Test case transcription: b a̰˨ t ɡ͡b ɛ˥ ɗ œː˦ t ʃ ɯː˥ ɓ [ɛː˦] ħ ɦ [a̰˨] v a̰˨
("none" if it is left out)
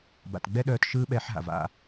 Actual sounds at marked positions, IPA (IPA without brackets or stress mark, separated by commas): ɛː˦, a̰˨